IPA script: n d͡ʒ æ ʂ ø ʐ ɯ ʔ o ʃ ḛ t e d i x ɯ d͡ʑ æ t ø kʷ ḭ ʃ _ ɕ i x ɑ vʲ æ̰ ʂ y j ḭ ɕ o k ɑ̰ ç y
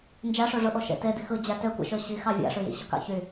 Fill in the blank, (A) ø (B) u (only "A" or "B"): A